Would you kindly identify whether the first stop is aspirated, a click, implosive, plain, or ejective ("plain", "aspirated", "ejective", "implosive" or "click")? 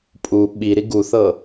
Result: ejective